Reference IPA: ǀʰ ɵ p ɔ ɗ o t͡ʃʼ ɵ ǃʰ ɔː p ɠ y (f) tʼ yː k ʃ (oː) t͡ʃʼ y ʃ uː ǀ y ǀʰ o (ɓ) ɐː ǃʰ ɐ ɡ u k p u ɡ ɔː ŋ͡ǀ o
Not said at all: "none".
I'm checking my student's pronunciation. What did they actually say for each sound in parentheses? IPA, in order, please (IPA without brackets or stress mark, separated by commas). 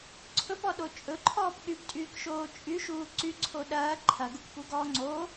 p, oː, ɗ